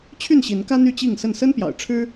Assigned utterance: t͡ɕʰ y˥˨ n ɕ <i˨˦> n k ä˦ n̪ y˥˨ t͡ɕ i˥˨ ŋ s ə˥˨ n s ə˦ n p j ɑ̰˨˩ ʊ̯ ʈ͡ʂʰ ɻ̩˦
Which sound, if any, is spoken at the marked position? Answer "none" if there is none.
i˨˦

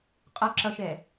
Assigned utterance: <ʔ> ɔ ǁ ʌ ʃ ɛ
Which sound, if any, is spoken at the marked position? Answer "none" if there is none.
qʼ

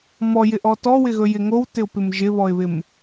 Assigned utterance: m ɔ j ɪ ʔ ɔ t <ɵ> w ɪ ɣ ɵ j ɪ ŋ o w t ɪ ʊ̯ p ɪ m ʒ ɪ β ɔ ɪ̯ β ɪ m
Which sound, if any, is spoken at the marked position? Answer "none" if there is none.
ɔ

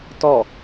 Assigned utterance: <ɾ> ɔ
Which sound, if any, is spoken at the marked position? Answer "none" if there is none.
t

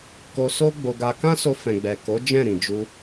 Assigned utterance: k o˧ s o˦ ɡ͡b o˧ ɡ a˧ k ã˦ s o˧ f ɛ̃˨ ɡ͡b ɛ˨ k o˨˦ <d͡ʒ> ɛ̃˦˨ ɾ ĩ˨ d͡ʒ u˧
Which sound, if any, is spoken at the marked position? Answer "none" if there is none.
d͡ʒ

